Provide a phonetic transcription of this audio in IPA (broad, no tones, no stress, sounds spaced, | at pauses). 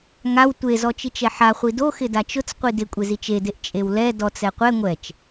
ŋ a w tʷ e z ɔ t͡ʃ i t͡ʃ ɛ ħ a χʷ i d o x ɪ d a t͡ʃ ʊ t͡s qʷ i d ɪ kʷʼ e z i t͡ʃ e d e ʔ t͡ʃʼ e w l ɛ d ɔ t͡s ɛ qʷ ɛ ŋʷ ɛ t͡ʃ